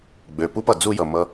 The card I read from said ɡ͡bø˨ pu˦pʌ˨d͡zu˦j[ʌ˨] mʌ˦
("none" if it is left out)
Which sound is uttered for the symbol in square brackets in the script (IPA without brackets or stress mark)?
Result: ʌ˨